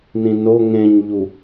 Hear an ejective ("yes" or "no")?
no